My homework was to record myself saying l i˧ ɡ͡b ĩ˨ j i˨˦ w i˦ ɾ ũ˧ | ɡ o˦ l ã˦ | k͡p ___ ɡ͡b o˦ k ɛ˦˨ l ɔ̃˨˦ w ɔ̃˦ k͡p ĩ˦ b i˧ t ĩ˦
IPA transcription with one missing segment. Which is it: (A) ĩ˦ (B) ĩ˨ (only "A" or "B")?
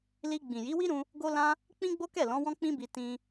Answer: A